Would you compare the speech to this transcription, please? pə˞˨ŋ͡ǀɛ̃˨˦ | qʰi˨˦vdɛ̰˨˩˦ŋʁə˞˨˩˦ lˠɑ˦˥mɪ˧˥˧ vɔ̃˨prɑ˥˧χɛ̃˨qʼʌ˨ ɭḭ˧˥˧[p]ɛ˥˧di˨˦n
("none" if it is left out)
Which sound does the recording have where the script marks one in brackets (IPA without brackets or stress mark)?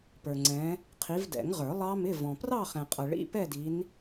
p